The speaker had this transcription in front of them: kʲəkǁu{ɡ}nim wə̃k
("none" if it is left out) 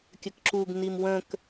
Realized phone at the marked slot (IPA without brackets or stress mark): ɡ